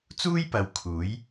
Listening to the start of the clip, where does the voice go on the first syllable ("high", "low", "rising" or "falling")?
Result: high